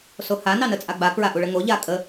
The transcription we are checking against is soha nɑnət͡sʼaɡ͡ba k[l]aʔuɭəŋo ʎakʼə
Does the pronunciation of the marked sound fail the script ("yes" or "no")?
yes